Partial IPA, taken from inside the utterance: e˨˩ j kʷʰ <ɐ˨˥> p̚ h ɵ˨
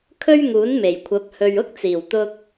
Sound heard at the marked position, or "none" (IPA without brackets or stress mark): ɐ˨˥